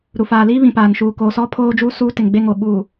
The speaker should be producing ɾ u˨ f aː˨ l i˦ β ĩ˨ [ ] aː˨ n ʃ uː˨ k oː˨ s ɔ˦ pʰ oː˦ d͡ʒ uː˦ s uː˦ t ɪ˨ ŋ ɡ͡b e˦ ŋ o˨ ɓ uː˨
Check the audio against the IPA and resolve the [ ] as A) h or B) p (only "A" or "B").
B